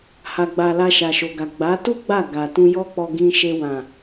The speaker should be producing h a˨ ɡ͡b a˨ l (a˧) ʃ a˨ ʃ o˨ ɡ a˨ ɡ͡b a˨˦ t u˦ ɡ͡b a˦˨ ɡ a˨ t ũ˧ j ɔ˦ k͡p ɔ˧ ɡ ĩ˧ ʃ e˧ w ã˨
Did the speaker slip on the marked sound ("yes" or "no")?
no